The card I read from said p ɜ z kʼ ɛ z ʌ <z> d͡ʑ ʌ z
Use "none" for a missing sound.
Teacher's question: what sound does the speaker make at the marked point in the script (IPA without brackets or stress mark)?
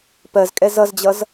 z